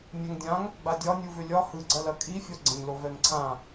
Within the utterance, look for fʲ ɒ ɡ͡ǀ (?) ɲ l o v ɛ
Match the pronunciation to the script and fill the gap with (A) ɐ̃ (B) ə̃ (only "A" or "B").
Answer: A